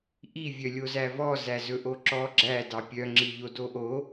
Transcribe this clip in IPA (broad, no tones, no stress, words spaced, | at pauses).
ʔi vʲœlʲozævɔ zæzɵʔoǁɔ ɡ͡ǁæ dɑpʲœ ŋ͡ǁiʎodoʔo